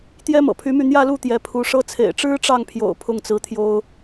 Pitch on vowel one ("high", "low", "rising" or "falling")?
high